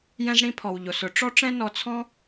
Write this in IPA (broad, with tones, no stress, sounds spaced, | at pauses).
j ɛ̃˧ z ɽ ĩ˧ pʰ ɔ˩ w ʎ o˩ s ʊ˩ ʈ͡ʂ ɔ˥ ʈ͡ʂ ɛ̃˥ n ɔ˧ t͡sʰ ɔ̃˥